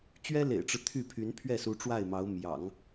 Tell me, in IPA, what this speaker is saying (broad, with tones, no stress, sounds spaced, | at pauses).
t͡ɕ ɥ ɛ˥ l ḛ˨˩ ɪ̯ ʈ͡ʂ ɻ̩˦ t̪ʰ y˥˩ pʰ y˧˥ n pʰ ɥ ɛ˥˩ s u˧˥ ʈ͡ʂ w a˥˩ ɪ̯ m ɑ˧˥ ʊ̯ m j ɑ̰˨˩˦ ŋ